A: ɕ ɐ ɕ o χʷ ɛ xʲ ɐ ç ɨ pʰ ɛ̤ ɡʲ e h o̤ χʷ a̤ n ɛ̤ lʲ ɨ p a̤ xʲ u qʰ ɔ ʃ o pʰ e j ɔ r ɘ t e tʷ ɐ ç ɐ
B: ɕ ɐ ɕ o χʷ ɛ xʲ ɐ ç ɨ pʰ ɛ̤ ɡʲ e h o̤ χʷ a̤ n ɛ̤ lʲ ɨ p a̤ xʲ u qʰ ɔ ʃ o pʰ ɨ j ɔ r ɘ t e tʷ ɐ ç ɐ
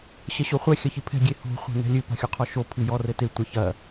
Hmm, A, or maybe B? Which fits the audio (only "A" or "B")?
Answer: B